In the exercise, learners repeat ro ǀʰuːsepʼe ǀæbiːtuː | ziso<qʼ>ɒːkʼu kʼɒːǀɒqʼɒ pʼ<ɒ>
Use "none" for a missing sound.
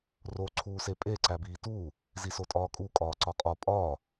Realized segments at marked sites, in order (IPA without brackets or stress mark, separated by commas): tʼ, ɒː